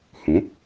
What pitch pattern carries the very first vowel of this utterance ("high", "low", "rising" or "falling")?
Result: rising